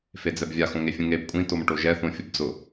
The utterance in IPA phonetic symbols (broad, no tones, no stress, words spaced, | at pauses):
fed͡zɛbvʲa xõŋefʲũŋeb kʷʼĩ tomʈoʒɛ θõfʲʊbd͡zʊ